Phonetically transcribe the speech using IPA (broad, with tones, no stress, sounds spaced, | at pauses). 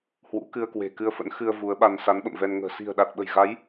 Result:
h w ṵ˧˥ k ɨ˧ ə̯ k w e̤˨˩ k ɨ˧ ə̯ f ə̰˧˥ n x ɨ˧ ə̯ v u˨˦ ə̯ ɓ a˧ n s a˨˦ n ɓ ə̰˧˨ m v ɛ˧ n ŋ ə̤ː˨˩ s i̤˨˩ ə̯ ɗ a˨˩ t̚ ɓ ə̤˨˩ j ɣ a˨˦ j